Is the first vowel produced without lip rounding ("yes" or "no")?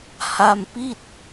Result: yes